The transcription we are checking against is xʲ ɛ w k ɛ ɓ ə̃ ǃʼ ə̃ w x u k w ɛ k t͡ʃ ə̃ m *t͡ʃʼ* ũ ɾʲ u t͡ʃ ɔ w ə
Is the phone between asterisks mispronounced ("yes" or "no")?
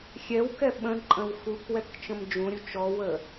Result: yes